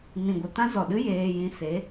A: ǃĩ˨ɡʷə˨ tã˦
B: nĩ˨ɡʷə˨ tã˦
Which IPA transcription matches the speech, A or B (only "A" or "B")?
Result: B